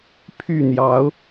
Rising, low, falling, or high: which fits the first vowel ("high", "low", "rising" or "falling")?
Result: falling